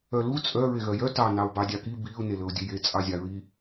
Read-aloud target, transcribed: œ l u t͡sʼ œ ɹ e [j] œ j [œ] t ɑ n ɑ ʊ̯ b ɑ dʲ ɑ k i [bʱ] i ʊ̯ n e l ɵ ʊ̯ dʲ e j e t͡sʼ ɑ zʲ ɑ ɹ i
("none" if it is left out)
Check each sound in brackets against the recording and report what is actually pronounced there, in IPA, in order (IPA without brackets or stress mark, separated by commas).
ɣ, œ, b